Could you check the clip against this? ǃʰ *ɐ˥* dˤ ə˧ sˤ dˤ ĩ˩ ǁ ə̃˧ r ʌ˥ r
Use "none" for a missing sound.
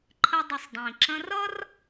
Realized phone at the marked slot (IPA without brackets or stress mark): ə˥